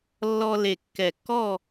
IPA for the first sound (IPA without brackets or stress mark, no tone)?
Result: lː